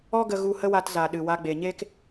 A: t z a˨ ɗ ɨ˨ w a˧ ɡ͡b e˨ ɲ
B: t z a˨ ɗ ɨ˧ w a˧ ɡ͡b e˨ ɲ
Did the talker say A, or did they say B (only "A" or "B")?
A